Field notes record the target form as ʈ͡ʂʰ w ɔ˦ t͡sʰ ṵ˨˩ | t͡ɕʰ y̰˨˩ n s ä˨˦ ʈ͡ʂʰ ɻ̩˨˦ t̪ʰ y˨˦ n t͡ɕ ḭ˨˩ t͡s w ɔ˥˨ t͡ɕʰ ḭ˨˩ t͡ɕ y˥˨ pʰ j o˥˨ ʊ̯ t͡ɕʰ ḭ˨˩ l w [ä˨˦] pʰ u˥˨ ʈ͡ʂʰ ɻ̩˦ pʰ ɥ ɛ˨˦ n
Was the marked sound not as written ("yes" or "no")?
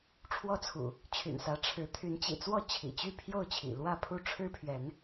yes